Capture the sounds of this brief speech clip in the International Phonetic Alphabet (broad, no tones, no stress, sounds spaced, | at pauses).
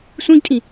sʷ ĩ ɡ tʼ ĩ